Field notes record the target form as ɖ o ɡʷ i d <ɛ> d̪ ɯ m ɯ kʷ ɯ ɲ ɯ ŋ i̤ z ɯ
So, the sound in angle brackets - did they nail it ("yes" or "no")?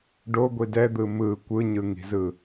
yes